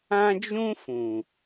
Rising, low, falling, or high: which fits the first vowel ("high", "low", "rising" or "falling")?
high